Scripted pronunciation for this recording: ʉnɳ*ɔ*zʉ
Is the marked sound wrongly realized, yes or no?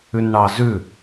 yes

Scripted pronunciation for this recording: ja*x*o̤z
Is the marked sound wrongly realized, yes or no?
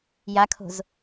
yes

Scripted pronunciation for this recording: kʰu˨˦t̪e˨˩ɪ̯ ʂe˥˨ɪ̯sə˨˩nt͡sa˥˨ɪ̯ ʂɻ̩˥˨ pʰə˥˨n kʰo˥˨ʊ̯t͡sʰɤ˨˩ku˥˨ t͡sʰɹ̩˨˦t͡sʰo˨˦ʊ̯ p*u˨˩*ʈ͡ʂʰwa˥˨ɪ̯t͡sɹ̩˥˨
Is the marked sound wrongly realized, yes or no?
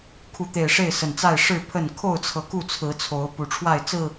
no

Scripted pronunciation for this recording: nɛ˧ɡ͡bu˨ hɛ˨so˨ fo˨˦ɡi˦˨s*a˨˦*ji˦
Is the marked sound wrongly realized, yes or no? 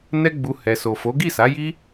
no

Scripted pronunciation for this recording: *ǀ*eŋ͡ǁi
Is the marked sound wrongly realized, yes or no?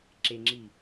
yes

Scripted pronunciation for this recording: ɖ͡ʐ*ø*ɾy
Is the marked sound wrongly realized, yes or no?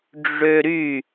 no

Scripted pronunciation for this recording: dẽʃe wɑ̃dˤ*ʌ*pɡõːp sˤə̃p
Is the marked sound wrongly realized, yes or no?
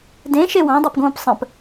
yes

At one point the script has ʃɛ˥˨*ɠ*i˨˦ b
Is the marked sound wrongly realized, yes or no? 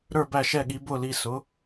no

